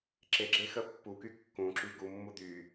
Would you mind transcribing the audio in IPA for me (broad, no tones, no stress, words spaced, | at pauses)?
ǁeɡ͡ǁe xəpːuky kːũǁy ɡumːu d̪y